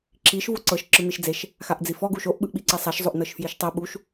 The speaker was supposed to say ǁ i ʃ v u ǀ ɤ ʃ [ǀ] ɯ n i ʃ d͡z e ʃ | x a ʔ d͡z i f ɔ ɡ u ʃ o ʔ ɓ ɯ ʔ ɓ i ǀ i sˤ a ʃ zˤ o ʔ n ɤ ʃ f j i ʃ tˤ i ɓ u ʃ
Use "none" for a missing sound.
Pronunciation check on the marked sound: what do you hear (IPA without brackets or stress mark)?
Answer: ǁ